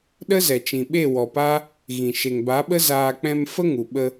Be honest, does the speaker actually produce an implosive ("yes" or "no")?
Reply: yes